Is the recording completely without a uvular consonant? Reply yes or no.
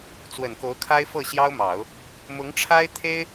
yes